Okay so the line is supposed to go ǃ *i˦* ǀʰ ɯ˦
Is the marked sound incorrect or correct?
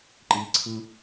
correct